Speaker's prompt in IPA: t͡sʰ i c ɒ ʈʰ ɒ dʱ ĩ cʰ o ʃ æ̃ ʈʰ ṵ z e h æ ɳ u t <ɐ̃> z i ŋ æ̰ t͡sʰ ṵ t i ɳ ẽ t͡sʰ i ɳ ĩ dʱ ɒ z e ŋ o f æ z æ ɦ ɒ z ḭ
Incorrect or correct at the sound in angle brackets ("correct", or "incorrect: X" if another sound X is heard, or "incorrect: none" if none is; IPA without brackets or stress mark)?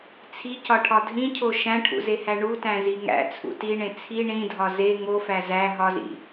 incorrect: æ̃